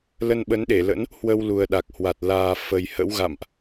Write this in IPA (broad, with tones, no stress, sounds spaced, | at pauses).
l ə˧ n ɓ ə˨˦ n ɗ e˧˩ l ə̰˧˥ n | h w ə˧ w l u˨˩ ə̯ ɗ a˨˩ k̚ h w a˨˩ t̚ l aː˨˩ f ə˨˩ j h ə̰˧˥ w ɣ a̰˧˨ m ʔ